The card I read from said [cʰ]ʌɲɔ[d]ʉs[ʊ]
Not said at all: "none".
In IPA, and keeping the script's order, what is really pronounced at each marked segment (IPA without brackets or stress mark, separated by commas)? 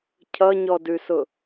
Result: cʰ, d, ʊ